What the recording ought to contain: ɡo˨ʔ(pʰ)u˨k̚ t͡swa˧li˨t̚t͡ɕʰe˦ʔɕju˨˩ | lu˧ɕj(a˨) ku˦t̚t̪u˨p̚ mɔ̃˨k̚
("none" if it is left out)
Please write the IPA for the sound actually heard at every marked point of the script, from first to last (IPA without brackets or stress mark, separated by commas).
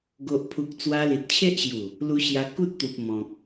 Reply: pʰ, a˧